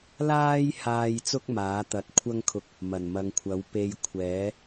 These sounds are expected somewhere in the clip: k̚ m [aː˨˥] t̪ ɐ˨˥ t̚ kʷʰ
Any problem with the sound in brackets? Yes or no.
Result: no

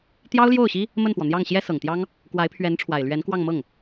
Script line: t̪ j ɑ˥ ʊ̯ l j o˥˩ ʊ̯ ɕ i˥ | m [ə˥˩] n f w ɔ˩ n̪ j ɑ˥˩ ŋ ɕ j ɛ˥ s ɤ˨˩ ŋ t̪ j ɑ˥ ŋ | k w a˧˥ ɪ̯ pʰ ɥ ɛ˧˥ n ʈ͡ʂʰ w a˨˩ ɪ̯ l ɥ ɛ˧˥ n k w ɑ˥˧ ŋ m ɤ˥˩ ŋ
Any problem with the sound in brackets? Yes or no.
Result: no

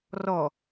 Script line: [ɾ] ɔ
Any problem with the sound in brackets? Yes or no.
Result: yes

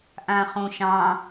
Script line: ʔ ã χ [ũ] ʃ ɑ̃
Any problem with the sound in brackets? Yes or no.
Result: yes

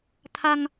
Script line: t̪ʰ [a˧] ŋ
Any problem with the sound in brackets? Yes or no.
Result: no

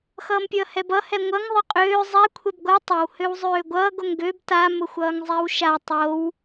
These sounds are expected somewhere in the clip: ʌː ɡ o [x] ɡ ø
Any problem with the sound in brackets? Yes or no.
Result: yes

